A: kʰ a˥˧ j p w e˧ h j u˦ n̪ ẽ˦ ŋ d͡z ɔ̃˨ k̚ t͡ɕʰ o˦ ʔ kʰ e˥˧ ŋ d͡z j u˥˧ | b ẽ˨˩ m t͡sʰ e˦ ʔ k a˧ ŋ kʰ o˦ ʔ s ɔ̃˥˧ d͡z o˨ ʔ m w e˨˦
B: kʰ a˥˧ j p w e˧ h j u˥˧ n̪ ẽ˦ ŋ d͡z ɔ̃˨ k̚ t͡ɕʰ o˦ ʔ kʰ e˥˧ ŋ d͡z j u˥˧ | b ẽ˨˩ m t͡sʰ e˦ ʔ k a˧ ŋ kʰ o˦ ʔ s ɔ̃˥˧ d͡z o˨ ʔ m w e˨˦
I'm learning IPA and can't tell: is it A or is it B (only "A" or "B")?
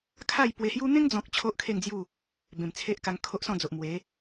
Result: A